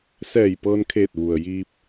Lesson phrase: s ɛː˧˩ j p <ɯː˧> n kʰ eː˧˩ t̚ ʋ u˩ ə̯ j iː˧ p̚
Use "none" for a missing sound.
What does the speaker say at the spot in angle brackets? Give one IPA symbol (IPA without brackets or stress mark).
ɤː˧